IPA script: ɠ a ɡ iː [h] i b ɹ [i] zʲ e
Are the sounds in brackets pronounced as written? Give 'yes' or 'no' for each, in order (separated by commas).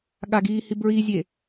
yes, yes